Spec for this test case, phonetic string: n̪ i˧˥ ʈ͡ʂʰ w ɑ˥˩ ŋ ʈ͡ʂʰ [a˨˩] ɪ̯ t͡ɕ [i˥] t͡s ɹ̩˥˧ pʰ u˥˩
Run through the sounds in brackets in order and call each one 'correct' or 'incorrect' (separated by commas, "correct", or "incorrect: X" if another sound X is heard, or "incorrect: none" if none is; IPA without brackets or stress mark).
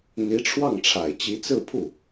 correct, incorrect: i˧˥